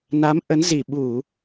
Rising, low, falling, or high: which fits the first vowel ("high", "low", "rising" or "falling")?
rising